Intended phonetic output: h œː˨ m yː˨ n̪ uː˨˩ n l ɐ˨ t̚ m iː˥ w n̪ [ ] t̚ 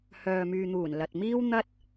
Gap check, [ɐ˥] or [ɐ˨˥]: ɐ˥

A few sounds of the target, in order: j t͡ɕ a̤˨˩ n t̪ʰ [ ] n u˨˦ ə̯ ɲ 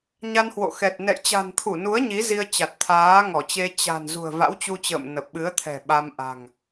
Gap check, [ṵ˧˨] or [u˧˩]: u˧˩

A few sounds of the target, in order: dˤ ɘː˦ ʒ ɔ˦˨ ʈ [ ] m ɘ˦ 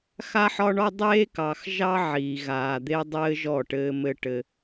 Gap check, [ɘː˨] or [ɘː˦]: ɘː˦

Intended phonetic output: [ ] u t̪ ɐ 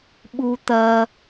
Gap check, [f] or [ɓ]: ɓ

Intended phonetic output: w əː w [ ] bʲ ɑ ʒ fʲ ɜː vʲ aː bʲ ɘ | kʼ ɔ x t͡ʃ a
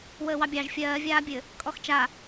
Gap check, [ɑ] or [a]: ɑ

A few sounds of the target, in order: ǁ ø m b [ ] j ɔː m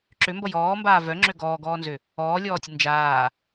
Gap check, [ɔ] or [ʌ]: ʌ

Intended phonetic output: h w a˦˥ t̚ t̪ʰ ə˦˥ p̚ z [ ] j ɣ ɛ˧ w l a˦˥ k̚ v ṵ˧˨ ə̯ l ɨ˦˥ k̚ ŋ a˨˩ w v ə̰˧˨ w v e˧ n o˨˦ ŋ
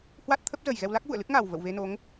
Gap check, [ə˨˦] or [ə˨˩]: ə˨˩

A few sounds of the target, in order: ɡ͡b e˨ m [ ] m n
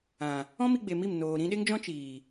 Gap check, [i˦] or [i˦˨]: i˦˨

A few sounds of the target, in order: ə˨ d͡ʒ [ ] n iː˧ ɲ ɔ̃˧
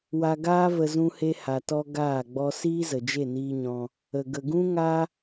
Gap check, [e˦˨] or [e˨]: e˦˨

